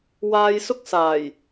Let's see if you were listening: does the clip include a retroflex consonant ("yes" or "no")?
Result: no